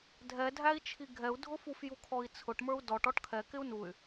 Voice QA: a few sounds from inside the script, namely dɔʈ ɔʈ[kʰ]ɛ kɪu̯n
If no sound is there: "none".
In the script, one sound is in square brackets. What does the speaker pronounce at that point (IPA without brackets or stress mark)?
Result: kʰ